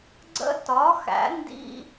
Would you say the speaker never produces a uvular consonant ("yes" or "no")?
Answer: yes